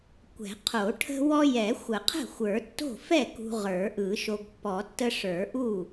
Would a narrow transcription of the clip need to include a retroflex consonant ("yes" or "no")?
yes